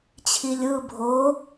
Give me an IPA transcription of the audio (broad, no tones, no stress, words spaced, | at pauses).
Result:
t͡ɕʰilʲɯ bʱo